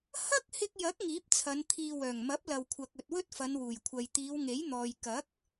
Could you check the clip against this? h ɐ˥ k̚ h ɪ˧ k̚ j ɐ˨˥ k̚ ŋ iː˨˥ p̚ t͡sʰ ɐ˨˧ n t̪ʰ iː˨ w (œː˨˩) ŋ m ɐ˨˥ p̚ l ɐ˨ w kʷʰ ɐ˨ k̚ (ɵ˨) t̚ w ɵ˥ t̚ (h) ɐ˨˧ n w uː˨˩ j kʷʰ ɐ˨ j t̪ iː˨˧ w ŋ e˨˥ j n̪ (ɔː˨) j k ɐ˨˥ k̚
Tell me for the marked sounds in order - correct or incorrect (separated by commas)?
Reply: correct, correct, incorrect, correct